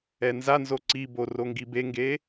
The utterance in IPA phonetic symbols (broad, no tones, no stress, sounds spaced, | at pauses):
ɛ n z a n z o ǀ i b o r o ŋ ɡ i b e ŋ ɡ e